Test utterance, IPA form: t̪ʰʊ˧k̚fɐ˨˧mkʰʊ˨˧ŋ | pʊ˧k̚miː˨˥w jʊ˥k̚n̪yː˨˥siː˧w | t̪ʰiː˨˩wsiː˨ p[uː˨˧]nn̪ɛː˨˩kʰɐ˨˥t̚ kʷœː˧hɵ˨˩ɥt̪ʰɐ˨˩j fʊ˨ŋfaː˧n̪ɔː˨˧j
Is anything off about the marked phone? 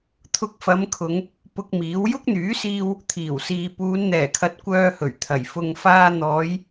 no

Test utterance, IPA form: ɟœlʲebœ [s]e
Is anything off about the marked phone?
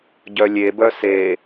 no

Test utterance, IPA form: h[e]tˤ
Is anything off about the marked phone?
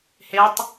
no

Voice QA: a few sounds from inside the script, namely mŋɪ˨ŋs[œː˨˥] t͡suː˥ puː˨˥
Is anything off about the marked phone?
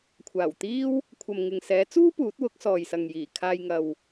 yes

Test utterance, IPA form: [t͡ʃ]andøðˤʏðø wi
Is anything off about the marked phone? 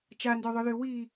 no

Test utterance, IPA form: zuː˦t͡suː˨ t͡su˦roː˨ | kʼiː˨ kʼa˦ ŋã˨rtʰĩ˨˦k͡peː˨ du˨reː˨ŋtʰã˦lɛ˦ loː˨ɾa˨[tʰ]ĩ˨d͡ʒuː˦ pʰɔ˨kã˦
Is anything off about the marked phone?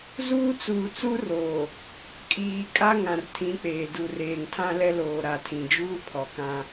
no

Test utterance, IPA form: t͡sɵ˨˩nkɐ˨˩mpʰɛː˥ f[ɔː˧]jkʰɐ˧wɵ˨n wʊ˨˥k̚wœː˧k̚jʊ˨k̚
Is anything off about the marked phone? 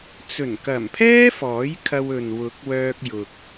yes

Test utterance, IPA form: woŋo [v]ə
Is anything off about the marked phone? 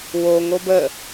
yes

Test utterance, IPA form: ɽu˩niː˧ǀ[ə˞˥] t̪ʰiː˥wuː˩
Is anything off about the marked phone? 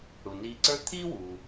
no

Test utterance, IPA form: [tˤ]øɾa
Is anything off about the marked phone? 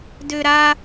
yes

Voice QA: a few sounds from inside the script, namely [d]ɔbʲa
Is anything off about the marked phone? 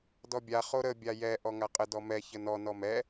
no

